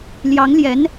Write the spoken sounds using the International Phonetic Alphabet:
l j ɑ˧˥ ŋ l j ɛ˧˥ n

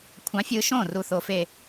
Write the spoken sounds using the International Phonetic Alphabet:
kʷʰ ɑ̃˨˥ fʲ ɯ˧ ʃ õ˥˩ r u˧ θ o˧ f e˥˩

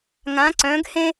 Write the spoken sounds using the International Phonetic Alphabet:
ŋ ã˧˥ ǀ œ̃˧˥ ɡ h ẽ˥

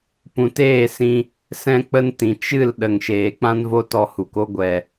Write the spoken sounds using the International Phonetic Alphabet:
p ũ˨ t eː˦˨ s ĩ˧ | s ɛ̃˦ k͡p ə˦ n t ĩ˨ t͡ʃ ɨ˦˨ l ɗ ə˨ ŋ ʃ eː˨ k͡p ã˦ n v o˦ t ɔ˧ h u˨ k o˦ ɡʷ ɛ˨

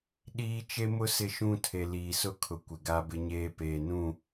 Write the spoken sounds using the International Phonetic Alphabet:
ɗ iː˦ t͡ʃ e˦ m ʊ˦ s ɪ˦ ʃ ũ˦ tʰ e˨ l iː˨ s ʊ˦ kʰ ʊ˨ kʷ ɪ˨ ɡ a˦ b ɪ˦ ɲ eː˦ p eː˨ n ũ˦˨

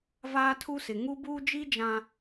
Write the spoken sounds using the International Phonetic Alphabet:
v aː˦ tʰ u˦ s ɪ˨ ŋ u˦ b uː˦ d͡ʒ i˦ d͡ʒ ã˨

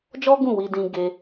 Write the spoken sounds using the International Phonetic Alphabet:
d͡ʒ ɔ˦ ɡ ũ˦˨ w i˧ d ĩ˧ ɡ e˦

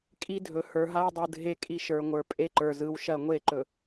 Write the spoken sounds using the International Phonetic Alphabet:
kʼ i˦ dʱ ɵ˨ h ə˞˨ ɦ a˦ ʊ̯ dˤ ɯ˨ dʱ e˦ kʼ i˦ ʃ ə˞˨ ŋʷ ə˞˨ pʼ e˦ ǃ ə˞˨ z ɯ˨˦ w ʃ ɐ˦˨ ŋʷ e˦˨ ǃ ɵ˨

